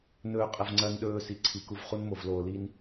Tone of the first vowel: low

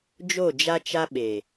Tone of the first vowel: falling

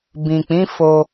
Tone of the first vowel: low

